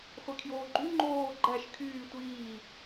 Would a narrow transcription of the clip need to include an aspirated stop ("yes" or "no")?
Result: yes